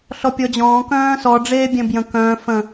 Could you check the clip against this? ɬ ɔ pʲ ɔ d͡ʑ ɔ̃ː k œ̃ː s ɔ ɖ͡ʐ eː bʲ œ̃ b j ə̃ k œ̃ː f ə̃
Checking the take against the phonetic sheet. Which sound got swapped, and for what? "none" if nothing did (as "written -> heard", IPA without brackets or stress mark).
none